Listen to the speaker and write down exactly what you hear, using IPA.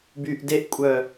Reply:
byːʔdeʔkʷʼœ

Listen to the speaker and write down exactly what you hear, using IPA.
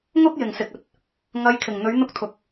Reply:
ŋʊ˥k̚jɪ˨ŋsɪ˨k̚ɵ˧t̚ | ŋɐ˧jkʰɪ˨ŋ n̪ɵ˨˧ɥn̪ʊ˧k̚t̪ʰʊ˨k̚

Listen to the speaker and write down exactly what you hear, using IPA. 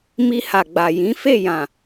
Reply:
mi˧ha˨ɡ͡ba˨jĩ˨˦ fe˦˨jã˨

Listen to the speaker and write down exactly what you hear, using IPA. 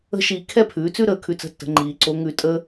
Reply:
ə̤˥ʃiː˧ kʰɛ˥pʰʉː˩˧t͡sʉ˥ ɾəː˩˧kʰʉ˧t͡sə̤˧˥tːə̤˩˧ ŋ͡ǃiː˩˧ǀo˧˥ ŋʉ˧tʼə˥

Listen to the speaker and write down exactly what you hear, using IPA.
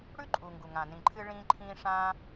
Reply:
ɽʉ˥ ǃʼu˩ ŋɡu˩ŋã˩ nĩ˩ǃʰɨ˧ ɭĩː˧ǃʰĩː˧ ʂã˧

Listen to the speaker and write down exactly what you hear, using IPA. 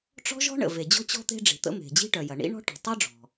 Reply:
ʈ͡ʂɔ̤˥ʒɔ̤˥ɳə̰˩ ve˩d͡ʑɔ̤˥ t͡ɕɔ̤˥t̪e̤˥ɖ͡ʐi̤˩t̪ə̰˥ me̤˩d͡ʑi̤˥ʈœ˩jɐ˩ ɳḭ˥ɳɔ̤˥ʈɔ̤˩ tˤø˥ɖ͡ʐɔ̤˩

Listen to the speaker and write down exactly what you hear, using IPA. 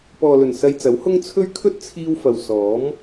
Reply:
pɔː˨lɵ˨˩n sɐ˧jt͡sɐ˨˥whʊ˥ŋ t͡sʰɵ˥ɥ kʰɵ˥t̚ t͡sʰiː˧w fɐ˨w sɔː˨˥m

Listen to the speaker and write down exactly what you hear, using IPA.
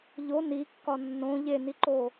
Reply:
ʎo nikːɒ nːõ ʎeniǃo

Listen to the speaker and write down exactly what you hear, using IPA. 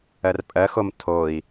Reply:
ɜrpʼɜxom tʰoi̯

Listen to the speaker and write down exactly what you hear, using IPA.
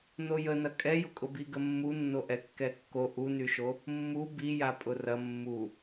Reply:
nojənɐ kʼɛjʊkʼʊ biɡəmːunːo ʔɛkːɛkːo ʔunyʃo | mːu bija pʼʊrɐ mːu

